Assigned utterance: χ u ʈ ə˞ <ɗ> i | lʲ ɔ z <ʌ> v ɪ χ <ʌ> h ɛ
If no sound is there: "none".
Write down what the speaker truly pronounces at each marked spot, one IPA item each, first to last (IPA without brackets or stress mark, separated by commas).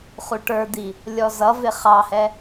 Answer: d̪, ʌ, ɑ